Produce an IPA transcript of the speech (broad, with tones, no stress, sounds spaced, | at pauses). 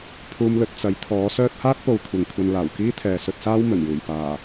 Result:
pʰ uː˧ m l ɵ˧ t̚ t͡s ɐ˨˥ j t̪ʰ ɔː˨˥ s œː˧ t̚ h aː˥ t̚ p o˧ w kʷʰ ɐ˨ ŋ kʷʰ ɐ˧ n l aː˨˩ w k iː˥ t̪ʰ ɛː˨ s ɵ˧ t̚ s aː˥ w m ɵ˨˩ n j uː˨˩ j p aː˨˩